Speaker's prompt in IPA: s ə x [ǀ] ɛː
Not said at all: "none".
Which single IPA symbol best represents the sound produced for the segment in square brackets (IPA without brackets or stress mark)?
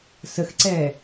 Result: ǀ